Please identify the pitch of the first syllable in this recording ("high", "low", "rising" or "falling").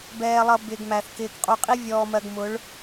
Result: low